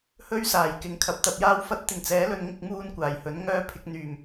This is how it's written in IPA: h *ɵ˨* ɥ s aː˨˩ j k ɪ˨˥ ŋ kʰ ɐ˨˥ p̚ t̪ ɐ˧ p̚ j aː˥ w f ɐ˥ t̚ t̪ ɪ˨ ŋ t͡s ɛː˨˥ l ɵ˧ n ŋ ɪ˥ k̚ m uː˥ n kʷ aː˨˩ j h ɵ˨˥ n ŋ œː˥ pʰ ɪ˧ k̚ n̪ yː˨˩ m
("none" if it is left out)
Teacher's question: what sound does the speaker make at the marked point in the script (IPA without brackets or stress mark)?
ɵ˥